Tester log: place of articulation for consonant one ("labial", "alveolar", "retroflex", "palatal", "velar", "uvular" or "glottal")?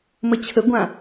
labial